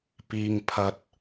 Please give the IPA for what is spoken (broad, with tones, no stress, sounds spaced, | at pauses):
p iː˧ ŋ pʰ ɐ˧ t̚